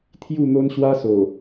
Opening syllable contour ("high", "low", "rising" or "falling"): falling